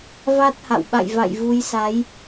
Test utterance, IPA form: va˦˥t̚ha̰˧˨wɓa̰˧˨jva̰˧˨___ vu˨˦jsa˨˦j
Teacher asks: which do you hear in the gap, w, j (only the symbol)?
j